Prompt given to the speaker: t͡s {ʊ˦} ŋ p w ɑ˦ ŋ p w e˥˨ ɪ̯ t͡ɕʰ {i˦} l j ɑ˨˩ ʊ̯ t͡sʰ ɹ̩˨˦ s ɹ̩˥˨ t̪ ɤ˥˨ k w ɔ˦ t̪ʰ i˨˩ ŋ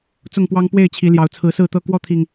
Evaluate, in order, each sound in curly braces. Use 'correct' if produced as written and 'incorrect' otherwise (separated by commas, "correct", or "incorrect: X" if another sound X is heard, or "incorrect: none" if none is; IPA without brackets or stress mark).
incorrect: ʊ˥˨, incorrect: i˨˦